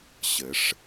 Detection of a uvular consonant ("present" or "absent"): absent